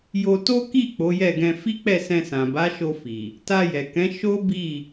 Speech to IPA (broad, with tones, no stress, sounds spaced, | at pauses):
j o˧ t o˦ k i˦˨ k͡p o˨˦ j ɛ˦˨ ɡ ɛ̃˧ f i˦ k͡p ɛ˦˨ s ɛ̃˧ s ã˨ b a˨˦ ʃ o˧ f i˨ | t a˧ j ɛ˨ k ɛ̃˨˦ ʃ o˦ b i˦˨